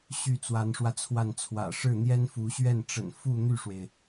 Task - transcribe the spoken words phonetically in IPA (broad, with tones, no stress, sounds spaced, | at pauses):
ɕ y˥˩ t͡s w a˧˥ n ʂ w ä˧ t͡sʰ w a˥˩ n t͡sʰ w ä̰˨˩ ʂ ɻ̩˥˩ n̪ j ɛ˥ n f u˧˥ ɕ ɥ ɛ˥˩ n ʈ͡ʂ ə̰˨˩ n f u˥˧ n̪ y˥˩ ʂ w e˩ ɪ̯